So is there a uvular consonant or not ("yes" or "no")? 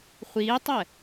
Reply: yes